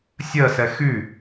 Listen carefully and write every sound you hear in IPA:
sʲ ɜ s ɛ x y

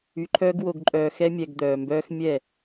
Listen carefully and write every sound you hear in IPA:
y˧ ǃʰ œː˦ ɡ w o˧ ɡ ǃʼ œː˧ x ɛ˦ mʲ ɛ˧ ɡ d̪ œː˧ m b œː˦ x mʲ ɛ˦˨

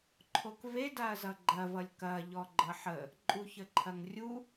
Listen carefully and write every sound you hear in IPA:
ǃʰ o k v e d a ɐ̯ z ʌ ɡ͡ǃ ɐ v ʌ lʲ k ɐ ʎ ɔ ɡ͡ǃ ʌ ħ ə | ǃʼ u ç ə ǃʰ ɐ ŋ rʲ u

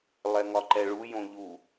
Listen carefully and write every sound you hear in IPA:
lˠ ɛ ŋ ɒ ǃ ɛ ɭ u j õ ʎ u

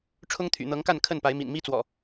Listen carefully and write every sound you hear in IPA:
ʈ͡ʂʰ ʊ˦ ŋ t̪ʰ y̰˨˩ n̪ ɤ˨˦ ŋ k a˥˨ n kʰ ə˥˨ n p a˨˦ ɪ̯ m ḭ˨˩ n m i˦ t͡s w ɔ̰˨˩

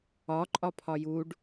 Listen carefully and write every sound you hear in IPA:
ɒ ǃʼ ɒ pʰ ɒ j u ɖ

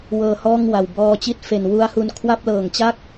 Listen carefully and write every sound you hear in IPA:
w ɤː˧ h ɔː˥˩ ŋ w a˨˩ w b ɔː˧ t͡ɕ i˥˩ t̚ f e˨˩ n w u˦˥ a̯ h u˧ n kʰ w a˥˩ p̚ l ɤː˨˩ ŋ t͡ɕ a˥˩ k̚

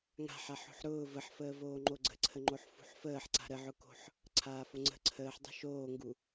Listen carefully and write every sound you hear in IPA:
ŋ a̤ ħ a ħ o̤ ħ ɾ ʊː v ə ħ f əː v oː ŋ͡ǃ o ɡ͡ǀ ə̤ ǀʰ ə ŋ͡ǃ o ħ f ṳ ħ f əː ħ ǀ a̤ ɾ ə ʕ ʊ k o̤ ħ | ǀʰ aː f o ŋ͡ǀ ə̤ ǀʰ əː ħ dˤ ə̤ ʃ oː ŋ ɡ u

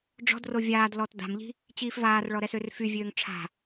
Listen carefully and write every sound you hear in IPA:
ɖ͡ʐ ɔ̤ d r o vʲ aː d l ɔ t d a̤ m ʎ i̤ | t͡ɕ iː f v aː r ɭ ɔ ɾ ɛ s ø r f y vʲ øː ŋ ʈ͡ʂʰ a̤

